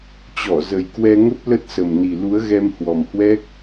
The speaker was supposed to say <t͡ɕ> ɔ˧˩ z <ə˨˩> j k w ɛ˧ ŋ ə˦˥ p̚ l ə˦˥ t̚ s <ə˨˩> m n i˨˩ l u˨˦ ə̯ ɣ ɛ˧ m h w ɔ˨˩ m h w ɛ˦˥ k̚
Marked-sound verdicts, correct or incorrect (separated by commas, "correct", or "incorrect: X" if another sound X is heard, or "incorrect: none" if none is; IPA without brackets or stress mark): correct, correct, correct